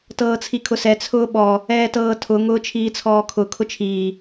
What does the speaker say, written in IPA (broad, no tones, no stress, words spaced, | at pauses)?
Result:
tɤːt͡sʰikʰʊsɛ t͡sʰʊːɓɔ | ɛːtɤːtʰʊ ŋʊːt͡ʃʰiːt͡sʰɔːkʰʊ kʰʊt͡ʃʰiː